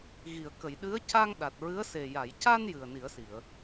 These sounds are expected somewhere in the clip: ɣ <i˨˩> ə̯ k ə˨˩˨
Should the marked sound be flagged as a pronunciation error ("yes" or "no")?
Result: yes